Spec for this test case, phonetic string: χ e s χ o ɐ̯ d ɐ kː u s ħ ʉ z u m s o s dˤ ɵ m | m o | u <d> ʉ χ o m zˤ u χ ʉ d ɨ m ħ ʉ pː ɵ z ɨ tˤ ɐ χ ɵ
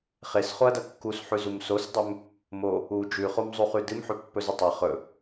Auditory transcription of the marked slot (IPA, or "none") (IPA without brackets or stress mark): d͡ʒ